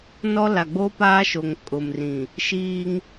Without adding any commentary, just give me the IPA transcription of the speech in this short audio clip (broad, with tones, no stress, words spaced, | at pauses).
nɔ˦ la˨ɡ͡bo˦paː˦ʃo˨ŋ kʼʊ˨mrĩ˨ | ʃiː˦ŋ